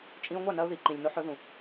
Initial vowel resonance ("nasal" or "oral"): nasal